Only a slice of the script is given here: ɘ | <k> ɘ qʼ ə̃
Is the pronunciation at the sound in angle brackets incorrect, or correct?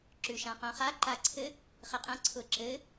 incorrect